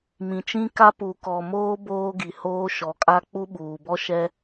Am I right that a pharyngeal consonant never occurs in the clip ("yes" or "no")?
yes